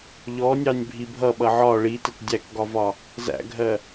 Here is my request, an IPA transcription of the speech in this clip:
ʎɔnʲɑnʲbʱi bʱʌɓʌ ʕɒ ɭitət dʲækɡɒvɒ | zæ̰ɡʱɜ

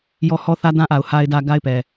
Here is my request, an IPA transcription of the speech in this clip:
jɔ˦ hɔ˦θä˦ dã˦ʔa˨ʊ̯ ha˨ɪ̯dä˨ ɡa˦ɪ̯pɛ˨

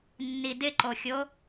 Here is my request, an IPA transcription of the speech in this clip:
nːidɪǃoxʲo

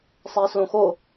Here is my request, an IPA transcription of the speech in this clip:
sˤæːslõxo

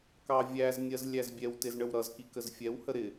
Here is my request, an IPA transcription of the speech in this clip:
kɑvʲæznʲɜz lʲæzbʲɛwtɪz ɳəwɾʌzki kəzfʲɛwhə ɾɪ

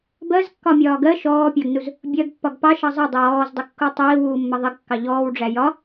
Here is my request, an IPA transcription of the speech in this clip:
bɜzkːɒmʲɒː ɡɜ ʃɔːpʲɑɡnuz | bʲɜɡpːɒɡ pɑʃɑ zˤədˤɪw ɔːzdˤɪkːu tˤiːwuːmːə ðˤiɡkːɑ ʎɔːwɖ͡ʐæ jɒ

